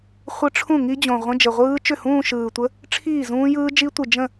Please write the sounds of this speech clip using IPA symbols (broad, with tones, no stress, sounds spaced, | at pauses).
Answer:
χʷ ə˦˥ ʈ͡ʂʰ ũ˥˩ ŋ i˦˥ d͡ʑ õ˨˩ ʁʷ ə̃˧˥˧ d͡ʒ ə˨˩ ʁʷ ɯː˦˥ t͡ʃ ʏ˥˩ h ũː˥˧ ʃ ɯː˨˩ tʷ ə˦˥ | ʈ͡ʂʰ iː˥˩ z ũː˦˥ j ɯː˦˥ d͡ʒ i˦˥ tʷ ɯ˨˩ d͡ʒ ə̃˥˩